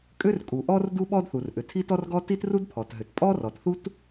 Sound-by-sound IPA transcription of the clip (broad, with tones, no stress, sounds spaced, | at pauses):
kʼ ʏ˥ r kʼ u˩ ʔ ɔ˥ r d u˥ ɓ ɔ˥ d θ u˩ r ʔ ʏ˩ tʰ i˥ t ɔ˥ r ɡ ɔ˥ t i˥ t r u˥ d pʰ ɔ˩ t ɦ ʏ˩ t pʼ ɔ˥ r ɔ˩ t θ u˥ t